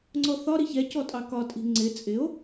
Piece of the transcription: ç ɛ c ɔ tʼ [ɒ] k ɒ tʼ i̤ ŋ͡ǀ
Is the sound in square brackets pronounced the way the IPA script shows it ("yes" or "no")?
no